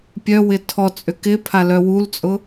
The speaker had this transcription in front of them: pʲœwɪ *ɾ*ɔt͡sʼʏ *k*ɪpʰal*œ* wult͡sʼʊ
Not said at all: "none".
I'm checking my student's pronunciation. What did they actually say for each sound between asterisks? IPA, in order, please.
tʰ, k, œ

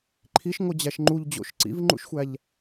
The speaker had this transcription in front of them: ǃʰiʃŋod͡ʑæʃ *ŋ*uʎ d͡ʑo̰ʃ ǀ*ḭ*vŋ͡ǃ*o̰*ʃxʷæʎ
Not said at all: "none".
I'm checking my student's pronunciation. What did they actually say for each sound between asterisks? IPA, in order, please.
ŋ͡ǃ, ḭ, ṵ

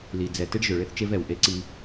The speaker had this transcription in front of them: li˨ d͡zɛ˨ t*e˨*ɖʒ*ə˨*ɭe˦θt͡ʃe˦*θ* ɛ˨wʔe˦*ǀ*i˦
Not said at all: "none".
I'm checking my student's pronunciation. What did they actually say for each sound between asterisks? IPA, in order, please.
e˦, ø˨, v, ǀ

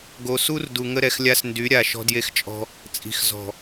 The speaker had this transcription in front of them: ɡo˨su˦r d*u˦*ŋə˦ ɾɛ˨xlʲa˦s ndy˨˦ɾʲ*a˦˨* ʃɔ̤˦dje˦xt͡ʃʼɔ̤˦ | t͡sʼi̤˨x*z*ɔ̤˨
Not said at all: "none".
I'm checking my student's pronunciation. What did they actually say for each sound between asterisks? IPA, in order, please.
u˨, a˨, z

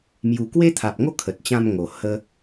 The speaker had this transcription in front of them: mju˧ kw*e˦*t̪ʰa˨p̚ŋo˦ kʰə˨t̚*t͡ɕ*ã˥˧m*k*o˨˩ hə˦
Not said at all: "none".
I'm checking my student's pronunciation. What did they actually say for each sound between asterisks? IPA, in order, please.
e˦, t͡ɕ, ŋ

